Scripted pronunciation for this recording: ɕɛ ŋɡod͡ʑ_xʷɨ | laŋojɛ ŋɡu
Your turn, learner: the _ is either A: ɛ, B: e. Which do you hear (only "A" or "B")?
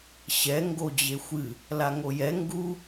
B